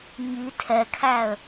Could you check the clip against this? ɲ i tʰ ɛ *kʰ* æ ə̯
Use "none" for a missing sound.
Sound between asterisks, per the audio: kʰ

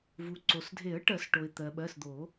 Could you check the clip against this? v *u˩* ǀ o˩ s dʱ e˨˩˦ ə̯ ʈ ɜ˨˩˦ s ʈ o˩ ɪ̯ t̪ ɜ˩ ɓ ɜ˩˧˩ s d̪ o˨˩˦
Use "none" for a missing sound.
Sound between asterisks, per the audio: u˩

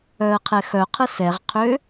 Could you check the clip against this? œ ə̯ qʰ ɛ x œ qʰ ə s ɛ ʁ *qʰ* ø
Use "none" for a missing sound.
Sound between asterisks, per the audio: qʰ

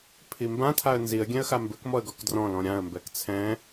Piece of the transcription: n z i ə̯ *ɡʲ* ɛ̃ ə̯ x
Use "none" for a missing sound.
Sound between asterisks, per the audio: ɡʲ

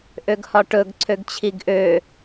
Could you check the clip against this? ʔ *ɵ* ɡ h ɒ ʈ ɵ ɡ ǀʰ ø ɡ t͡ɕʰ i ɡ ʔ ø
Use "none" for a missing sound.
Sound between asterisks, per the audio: ø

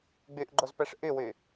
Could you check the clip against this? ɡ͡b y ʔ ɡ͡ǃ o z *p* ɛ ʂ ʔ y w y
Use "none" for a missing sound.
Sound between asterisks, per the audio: p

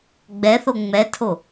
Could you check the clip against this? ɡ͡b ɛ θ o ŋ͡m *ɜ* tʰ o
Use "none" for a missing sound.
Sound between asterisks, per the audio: ɛ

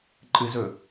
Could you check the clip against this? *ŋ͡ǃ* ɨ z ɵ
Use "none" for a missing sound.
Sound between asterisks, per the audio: ǃʼ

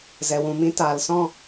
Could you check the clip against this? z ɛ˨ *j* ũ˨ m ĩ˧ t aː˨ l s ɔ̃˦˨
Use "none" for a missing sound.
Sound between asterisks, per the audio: w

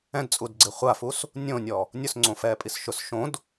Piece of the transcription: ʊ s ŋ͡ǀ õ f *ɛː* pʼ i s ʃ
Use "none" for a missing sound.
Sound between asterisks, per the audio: ɛː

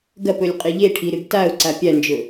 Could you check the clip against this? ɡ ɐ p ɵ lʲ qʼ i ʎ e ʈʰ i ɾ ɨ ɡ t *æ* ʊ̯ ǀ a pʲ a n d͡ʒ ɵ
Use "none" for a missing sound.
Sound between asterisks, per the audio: a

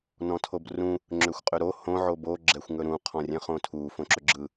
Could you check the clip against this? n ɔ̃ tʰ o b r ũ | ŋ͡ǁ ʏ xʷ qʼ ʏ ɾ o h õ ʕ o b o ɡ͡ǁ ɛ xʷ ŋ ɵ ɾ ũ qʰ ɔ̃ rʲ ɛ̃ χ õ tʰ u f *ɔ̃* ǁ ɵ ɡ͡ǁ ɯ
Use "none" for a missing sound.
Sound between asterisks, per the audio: õ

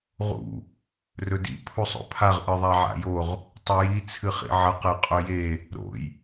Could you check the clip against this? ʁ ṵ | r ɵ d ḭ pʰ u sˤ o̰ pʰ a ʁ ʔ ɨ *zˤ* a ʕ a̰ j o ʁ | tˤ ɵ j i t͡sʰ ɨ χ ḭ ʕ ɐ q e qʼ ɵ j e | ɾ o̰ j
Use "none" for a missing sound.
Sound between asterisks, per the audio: ðˤ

